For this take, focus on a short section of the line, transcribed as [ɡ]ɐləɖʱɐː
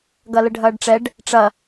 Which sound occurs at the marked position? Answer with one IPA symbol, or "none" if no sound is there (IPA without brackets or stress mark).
ɡ